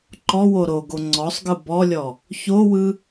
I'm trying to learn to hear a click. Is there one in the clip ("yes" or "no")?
yes